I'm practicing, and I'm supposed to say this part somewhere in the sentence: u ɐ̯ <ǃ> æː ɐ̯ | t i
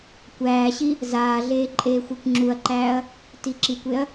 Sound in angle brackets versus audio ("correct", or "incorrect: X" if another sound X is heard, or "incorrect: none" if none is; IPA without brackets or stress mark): correct